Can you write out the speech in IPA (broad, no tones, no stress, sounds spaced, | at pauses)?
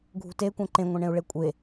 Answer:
ɡʱ ṳ t e kʷ ɛ̃ ǃ ẽ ŋʷ ɛ̃ ɳ ẽ u̯ ɭ e kʷʼ e